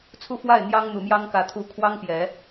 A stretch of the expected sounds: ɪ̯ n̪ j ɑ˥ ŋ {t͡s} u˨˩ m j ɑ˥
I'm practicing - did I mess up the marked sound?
yes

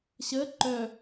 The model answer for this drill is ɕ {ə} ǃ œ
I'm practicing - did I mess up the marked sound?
no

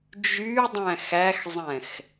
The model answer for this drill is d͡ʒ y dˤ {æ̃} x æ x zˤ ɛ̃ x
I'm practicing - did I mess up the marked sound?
no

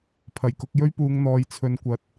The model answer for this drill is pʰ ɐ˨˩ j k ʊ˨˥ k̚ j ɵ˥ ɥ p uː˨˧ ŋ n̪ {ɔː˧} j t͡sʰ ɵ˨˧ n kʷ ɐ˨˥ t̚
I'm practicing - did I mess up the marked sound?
yes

